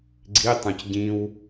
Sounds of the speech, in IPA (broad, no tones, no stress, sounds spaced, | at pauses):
ɡ͡ǀ i tˤ ũ c ɟ ĩ w